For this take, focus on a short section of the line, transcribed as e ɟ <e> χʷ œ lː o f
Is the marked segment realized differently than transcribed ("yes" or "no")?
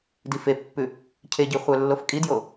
yes